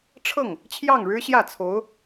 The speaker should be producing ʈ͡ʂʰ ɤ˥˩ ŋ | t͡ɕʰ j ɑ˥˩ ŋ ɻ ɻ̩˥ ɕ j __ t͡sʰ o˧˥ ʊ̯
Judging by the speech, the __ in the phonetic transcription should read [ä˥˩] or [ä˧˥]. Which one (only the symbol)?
ä˥˩